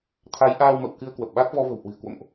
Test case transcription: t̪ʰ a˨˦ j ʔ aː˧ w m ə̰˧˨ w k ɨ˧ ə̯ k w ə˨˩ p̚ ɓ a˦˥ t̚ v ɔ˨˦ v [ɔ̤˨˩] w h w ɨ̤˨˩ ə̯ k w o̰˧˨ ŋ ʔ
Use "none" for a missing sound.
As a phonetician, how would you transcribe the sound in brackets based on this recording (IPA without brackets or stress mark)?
ə̤˨˩